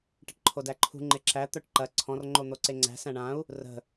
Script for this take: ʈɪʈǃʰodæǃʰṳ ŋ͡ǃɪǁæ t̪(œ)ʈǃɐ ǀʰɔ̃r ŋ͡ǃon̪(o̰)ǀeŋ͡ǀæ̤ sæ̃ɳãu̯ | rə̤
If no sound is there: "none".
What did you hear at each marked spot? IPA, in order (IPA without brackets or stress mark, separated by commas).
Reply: œ, o